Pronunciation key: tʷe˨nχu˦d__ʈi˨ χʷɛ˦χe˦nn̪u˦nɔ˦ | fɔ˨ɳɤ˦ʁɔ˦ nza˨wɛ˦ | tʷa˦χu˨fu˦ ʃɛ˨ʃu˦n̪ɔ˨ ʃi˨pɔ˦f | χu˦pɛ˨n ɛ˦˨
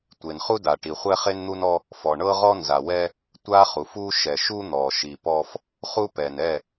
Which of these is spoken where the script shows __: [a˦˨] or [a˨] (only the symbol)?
a˨